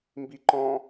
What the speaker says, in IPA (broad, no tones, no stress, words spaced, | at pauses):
mbiǃɔ̃